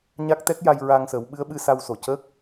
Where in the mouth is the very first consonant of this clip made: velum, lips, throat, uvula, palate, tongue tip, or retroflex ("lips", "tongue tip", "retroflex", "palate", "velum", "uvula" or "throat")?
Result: palate